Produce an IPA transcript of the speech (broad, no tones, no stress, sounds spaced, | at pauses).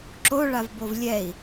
ǁ o ɭ a v b o v lʲ ɛ i̯